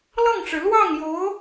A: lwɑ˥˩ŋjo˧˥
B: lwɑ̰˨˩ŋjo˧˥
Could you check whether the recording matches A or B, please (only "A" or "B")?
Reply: A